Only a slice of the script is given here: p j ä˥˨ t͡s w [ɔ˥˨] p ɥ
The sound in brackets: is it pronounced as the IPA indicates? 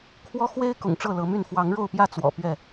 no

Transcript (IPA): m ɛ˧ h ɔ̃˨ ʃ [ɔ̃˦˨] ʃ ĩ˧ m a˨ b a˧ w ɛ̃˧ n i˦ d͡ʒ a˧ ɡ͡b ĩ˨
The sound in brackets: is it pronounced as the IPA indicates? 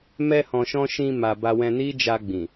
no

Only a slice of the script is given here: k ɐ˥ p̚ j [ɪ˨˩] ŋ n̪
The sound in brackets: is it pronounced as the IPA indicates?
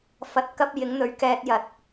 no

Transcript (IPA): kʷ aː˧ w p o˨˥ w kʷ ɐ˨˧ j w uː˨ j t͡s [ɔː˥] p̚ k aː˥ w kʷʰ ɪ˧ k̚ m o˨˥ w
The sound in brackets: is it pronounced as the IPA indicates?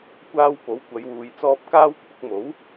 no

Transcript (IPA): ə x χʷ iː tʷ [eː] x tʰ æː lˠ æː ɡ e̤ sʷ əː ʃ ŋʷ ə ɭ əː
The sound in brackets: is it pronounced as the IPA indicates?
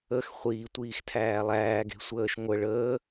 no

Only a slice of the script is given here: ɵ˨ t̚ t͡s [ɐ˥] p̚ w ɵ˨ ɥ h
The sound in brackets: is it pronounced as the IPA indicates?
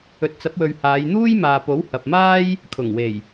no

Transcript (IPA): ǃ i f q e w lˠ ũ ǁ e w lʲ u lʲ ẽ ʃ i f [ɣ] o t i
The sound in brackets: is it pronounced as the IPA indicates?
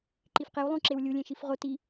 no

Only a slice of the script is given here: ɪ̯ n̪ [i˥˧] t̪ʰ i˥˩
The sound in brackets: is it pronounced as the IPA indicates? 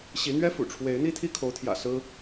yes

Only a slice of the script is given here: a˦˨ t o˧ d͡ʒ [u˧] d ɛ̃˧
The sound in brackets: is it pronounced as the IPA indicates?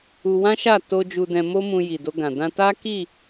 yes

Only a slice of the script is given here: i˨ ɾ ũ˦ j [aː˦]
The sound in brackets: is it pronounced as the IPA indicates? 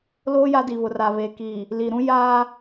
yes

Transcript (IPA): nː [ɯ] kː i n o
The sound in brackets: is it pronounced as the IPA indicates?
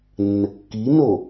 no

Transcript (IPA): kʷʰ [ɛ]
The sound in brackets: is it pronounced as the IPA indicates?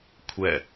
yes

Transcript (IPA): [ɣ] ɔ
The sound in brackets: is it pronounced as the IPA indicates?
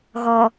yes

